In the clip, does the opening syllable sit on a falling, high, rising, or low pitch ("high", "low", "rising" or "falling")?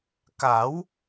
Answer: rising